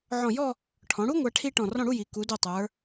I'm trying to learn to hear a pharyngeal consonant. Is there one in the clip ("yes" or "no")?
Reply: yes